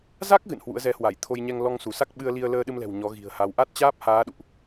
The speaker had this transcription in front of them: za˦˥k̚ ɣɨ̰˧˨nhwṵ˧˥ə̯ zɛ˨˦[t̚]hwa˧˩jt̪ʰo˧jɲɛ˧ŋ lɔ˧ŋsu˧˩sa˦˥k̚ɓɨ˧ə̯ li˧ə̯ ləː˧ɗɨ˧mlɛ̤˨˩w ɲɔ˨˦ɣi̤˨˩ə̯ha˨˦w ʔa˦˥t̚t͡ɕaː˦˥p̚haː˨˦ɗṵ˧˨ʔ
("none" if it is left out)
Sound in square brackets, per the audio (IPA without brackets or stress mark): none